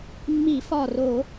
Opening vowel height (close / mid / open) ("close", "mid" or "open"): close